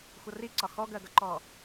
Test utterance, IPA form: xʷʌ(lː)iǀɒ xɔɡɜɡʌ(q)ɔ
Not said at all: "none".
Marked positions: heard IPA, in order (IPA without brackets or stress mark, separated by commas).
r, ǃ